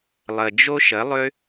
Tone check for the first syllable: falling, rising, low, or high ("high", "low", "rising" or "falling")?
low